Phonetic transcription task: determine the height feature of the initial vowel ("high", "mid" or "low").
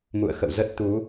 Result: high